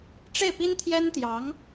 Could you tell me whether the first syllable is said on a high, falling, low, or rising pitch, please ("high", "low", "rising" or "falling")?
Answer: falling